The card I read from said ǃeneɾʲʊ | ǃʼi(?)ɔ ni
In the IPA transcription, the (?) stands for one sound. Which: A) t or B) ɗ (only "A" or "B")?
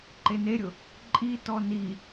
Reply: A